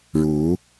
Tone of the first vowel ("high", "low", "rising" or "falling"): rising